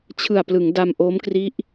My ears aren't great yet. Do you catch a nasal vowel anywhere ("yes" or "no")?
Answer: no